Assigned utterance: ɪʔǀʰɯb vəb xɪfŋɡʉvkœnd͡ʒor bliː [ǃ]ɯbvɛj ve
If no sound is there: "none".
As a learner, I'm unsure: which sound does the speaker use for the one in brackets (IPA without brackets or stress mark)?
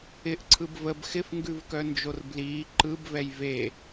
ǃ